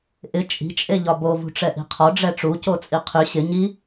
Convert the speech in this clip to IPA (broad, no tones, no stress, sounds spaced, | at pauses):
ʔ ɪ t͡ʃʼ i̤ t͡ʃʼ e ʎ ɒ b o v ṳ ʈ͡ʂ ɛ ʔ i̤ qʰ ɔ ɖ͡ʐ ɛ ʈ͡ʂ u c o t͡sʼ i qʰ y ɕ ɪ ɲ i